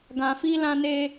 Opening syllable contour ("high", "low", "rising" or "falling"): low